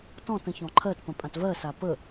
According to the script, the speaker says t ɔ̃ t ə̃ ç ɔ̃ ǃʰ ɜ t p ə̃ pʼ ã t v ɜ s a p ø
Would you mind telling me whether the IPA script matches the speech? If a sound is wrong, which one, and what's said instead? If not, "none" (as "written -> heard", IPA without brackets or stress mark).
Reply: ø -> ə